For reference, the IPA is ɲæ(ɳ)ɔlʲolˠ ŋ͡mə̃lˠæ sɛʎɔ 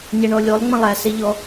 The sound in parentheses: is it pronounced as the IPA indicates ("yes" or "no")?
yes